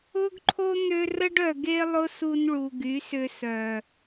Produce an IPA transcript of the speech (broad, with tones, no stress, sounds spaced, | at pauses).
ʊ˦ ɡ ǃʰ o˦ n̪ ø˧ r ə˦ ɖ œ˨ ɡ e˦ lˠ ʊ˦ s u˧ n ɭ u˨ ɡ y˨˦ s ʏ˧ s œ˨